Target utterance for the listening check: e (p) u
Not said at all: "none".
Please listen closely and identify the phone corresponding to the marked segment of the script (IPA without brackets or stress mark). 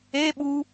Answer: ɓ